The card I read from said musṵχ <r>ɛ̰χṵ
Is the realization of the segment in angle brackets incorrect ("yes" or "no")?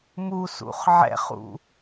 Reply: yes